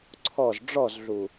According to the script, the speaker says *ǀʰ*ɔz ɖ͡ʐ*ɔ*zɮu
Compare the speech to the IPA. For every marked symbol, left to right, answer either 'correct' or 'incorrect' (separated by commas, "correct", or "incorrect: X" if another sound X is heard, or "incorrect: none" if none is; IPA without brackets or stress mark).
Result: correct, correct